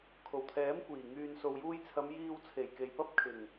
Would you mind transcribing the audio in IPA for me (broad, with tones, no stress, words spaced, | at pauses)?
kʰo˨˩wt̪ʰɛː˨˥mkʷiː˨˩ ŋyː˨nso˨wjuː˧jt͡sʰɐ˨˧m jiː˧wt͡sʰe˨˩j ke˨jpɐ˥p̚kʰɪ˨˩ŋ